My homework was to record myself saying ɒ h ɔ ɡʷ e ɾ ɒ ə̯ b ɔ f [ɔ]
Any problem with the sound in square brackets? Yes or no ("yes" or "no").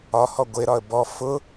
yes